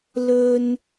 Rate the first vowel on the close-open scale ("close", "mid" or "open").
mid